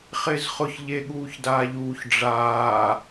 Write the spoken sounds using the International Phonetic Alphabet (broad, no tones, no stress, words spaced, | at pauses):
χɪːzχʊç ʎeɠuːçdaːʎuːç ɖ͡ʐaː